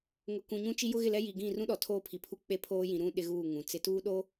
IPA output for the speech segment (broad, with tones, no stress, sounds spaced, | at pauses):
ŋ ʊ˨ k ũ˨ ɲ ũ˦ t͡ʃ i˦ j ʊ˦ ɣ ɪ˦˨ l ɛ˦ j i˨ ɡ ĩ˦˨ r ũ˦ ɗ ɔ˨ tʰ oː˦ pʰ i˨ pʰ u˦ k͡p e˦ pʰ oː˦ j ĩ˨ ɾ ũ˦ ɗ ɪ˦ ɣ uː˦˨ ŋ ũ˨ t͡s ɪ˨˦ t uː˦ ɗ o˦